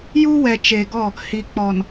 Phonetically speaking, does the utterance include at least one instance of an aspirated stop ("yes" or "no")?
no